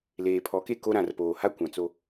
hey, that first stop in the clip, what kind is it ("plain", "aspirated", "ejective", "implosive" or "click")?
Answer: aspirated